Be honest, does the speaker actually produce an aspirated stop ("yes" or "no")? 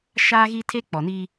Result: yes